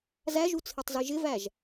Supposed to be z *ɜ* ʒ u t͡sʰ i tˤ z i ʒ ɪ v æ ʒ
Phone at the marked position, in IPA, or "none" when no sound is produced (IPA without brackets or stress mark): æ